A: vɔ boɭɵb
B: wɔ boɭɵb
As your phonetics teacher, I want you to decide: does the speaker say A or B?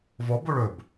A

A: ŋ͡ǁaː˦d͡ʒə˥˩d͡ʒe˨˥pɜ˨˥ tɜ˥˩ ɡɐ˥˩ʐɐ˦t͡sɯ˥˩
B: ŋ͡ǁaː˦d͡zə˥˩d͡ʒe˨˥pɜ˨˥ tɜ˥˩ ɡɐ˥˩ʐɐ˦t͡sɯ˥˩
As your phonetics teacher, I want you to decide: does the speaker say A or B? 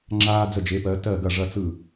B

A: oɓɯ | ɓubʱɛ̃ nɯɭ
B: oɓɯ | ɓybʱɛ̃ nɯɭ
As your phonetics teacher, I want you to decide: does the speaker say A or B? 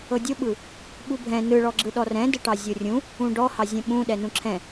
A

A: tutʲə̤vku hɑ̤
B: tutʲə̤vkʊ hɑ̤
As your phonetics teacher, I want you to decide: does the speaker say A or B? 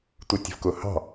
B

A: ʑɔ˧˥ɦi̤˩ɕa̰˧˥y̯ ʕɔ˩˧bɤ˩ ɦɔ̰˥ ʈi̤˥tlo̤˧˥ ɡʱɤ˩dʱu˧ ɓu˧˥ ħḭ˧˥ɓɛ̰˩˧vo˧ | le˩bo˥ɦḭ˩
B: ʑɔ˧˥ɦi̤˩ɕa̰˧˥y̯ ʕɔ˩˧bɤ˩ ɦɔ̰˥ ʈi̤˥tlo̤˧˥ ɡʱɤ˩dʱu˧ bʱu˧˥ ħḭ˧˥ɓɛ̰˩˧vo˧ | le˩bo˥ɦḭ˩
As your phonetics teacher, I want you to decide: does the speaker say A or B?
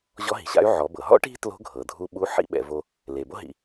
A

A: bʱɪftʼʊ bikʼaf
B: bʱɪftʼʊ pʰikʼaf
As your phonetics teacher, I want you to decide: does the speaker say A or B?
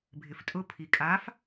B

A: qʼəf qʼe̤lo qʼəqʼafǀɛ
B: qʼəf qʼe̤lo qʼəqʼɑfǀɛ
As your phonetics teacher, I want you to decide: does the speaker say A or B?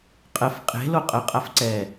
A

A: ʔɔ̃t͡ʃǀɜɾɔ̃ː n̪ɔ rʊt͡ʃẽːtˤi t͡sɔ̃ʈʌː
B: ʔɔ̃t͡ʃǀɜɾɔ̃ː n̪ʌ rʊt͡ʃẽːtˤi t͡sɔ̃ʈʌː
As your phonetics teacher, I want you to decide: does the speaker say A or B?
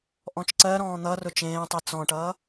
B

